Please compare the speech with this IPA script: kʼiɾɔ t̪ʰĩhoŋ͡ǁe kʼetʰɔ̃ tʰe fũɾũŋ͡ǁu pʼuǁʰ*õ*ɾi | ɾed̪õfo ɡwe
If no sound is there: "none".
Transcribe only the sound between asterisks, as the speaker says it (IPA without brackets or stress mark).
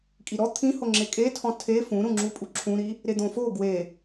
ũ